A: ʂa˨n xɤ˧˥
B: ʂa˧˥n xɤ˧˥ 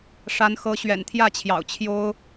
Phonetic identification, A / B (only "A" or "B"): B